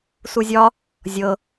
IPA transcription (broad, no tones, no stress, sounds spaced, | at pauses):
s u zʲ ɒ | zʲ ɤ